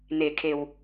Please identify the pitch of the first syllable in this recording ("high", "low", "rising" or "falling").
low